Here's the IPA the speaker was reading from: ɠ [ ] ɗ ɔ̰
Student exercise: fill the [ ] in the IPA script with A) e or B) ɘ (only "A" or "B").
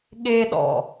A